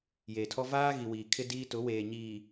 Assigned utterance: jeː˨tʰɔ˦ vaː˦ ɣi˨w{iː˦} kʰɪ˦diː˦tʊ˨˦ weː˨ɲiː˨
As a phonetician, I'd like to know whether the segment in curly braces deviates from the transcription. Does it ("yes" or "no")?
yes